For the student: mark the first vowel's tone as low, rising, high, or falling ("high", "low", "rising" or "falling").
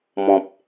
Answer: low